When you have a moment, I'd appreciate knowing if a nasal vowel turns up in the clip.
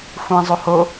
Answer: yes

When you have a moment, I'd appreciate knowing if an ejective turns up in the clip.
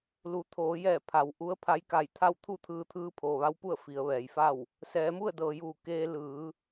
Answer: no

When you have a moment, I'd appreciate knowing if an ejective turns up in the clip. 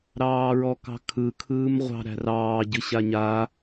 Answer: no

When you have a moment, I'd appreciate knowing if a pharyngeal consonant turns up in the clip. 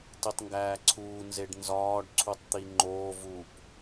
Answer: no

